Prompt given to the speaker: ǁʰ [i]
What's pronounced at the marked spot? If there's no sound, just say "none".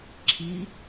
i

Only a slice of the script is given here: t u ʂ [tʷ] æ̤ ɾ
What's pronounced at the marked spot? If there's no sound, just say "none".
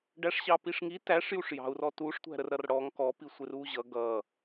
tʷ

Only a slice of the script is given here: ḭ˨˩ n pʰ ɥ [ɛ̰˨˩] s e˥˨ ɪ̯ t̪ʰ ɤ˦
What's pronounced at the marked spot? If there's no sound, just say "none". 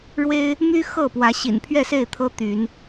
ɛ˥˨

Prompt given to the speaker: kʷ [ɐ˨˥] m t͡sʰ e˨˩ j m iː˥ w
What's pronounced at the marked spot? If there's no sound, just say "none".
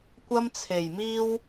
ɐ˥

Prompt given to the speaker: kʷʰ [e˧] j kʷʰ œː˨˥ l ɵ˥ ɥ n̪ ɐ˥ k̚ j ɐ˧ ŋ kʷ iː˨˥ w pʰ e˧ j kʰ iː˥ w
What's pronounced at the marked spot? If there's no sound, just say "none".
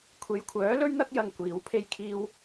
e˨˧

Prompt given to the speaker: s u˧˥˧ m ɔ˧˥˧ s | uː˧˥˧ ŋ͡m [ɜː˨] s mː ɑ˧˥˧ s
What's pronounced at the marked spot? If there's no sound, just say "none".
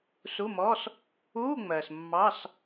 ɜː˨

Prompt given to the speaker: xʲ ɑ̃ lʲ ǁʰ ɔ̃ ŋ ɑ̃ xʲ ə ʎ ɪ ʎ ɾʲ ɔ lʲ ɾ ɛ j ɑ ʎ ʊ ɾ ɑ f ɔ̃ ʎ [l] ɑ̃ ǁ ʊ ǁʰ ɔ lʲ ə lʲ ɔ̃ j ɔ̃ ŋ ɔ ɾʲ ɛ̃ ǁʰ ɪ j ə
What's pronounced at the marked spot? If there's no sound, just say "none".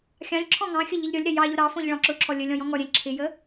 ɭ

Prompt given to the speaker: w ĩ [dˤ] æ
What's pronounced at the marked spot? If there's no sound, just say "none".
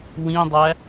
dˤ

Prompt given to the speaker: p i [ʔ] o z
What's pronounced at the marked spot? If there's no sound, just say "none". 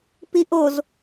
ʔ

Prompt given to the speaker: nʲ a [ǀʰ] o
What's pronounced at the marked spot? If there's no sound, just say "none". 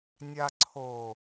ǀʰ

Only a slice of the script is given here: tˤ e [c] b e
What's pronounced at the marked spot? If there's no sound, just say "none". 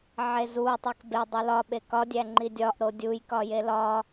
k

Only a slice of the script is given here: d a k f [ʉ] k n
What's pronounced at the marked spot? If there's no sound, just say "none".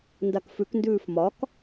ʉ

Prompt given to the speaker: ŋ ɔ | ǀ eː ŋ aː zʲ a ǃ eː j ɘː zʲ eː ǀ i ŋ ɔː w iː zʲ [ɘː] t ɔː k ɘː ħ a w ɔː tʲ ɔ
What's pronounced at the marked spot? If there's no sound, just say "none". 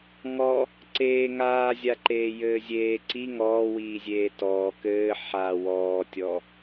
eː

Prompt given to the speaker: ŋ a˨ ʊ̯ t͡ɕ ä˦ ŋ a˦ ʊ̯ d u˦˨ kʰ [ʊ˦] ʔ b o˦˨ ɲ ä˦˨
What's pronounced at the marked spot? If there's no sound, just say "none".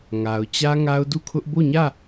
ʊ˦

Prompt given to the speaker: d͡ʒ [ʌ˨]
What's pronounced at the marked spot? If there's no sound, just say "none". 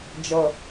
ʌ˨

